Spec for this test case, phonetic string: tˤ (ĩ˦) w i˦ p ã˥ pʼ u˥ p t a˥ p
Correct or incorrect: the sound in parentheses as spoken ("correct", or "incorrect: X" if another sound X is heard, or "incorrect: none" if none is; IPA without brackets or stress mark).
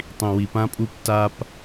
correct